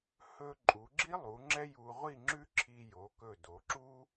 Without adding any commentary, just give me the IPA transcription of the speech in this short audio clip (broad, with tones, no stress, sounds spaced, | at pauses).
h ɵ˧ ǃʼ u˩˧ ɡ͡ǁ i˥ lˠ u˩˧ ŋ͡ǁ ɛ˥ j u˧ ʁʷ i˥˧ ŋ͡ǁ ʉ˥ ǁʰ i˧ j o˩˧ k ɵ˧˩ d o˩˧ ǁ u˥